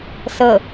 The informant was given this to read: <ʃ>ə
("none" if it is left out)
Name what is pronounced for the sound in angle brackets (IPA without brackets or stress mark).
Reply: s